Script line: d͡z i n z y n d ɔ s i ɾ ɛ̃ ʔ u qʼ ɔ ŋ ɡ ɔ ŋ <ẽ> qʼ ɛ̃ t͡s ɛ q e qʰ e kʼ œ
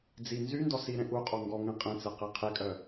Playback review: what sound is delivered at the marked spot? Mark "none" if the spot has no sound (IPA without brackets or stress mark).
ɛ̃